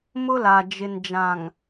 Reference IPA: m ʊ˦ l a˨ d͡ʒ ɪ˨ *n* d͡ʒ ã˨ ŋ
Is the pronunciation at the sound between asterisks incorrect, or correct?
correct